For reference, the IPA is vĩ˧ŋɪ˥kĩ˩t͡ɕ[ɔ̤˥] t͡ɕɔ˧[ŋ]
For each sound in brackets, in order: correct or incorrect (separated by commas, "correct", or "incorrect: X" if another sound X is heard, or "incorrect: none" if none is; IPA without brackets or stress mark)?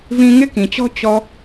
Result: correct, incorrect: none